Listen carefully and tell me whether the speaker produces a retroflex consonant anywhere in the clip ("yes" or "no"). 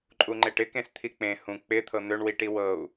yes